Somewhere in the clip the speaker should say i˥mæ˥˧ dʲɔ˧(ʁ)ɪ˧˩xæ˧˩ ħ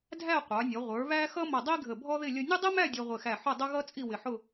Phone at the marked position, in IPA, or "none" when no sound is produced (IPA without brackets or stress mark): ʁʷ